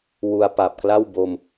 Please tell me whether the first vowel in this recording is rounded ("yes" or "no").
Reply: yes